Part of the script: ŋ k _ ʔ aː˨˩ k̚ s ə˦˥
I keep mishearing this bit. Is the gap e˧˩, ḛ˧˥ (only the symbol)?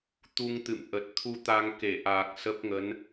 e˧˩